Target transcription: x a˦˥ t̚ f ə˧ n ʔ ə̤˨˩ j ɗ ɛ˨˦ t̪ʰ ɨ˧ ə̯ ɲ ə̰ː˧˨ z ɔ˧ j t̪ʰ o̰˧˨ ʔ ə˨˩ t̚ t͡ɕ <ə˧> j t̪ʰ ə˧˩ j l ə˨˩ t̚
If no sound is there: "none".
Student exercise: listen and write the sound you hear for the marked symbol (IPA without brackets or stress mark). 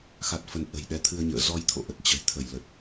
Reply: ə̤˨˩